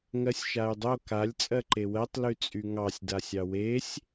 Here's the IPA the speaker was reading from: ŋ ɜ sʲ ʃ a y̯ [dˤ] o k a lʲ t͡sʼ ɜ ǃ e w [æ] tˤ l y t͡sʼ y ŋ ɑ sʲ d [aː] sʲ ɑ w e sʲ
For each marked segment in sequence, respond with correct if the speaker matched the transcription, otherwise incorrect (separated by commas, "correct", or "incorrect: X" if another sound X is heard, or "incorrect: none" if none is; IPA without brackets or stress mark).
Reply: correct, incorrect: ɜ, incorrect: a